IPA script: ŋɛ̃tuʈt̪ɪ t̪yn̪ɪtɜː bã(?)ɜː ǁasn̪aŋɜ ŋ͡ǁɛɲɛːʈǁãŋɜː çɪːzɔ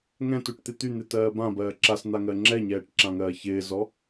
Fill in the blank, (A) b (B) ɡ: A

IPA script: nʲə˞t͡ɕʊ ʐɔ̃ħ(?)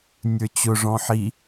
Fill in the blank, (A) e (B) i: B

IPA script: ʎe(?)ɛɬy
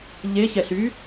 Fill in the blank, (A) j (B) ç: B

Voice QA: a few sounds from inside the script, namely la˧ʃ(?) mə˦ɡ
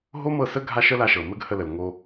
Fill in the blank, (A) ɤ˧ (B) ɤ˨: B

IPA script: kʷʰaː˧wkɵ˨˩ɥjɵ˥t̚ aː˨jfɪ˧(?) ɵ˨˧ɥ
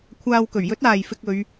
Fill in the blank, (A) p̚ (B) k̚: B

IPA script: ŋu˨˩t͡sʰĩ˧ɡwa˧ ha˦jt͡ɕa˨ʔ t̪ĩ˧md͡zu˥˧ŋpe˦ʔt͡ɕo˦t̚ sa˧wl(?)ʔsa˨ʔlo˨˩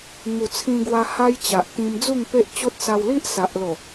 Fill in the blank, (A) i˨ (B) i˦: B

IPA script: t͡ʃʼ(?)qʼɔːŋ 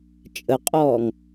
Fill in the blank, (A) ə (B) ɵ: A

